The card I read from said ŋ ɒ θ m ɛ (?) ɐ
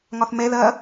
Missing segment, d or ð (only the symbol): ð